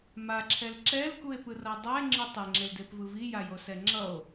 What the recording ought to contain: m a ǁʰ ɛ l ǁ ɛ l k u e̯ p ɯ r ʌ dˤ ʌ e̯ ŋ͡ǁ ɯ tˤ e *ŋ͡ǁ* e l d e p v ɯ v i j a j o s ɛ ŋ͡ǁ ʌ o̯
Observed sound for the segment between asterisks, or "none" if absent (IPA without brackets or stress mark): ŋ͡ǁ